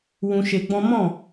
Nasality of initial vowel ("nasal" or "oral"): nasal